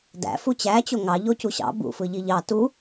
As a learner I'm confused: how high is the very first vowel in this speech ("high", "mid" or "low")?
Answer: low